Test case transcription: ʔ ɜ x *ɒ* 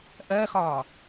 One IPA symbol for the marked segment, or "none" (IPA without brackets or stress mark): ɒ